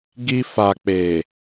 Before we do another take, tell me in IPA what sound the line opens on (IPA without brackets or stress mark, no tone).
ɡ